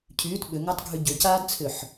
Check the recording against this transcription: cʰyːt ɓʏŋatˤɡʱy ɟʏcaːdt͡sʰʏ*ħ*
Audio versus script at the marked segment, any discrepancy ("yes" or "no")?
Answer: no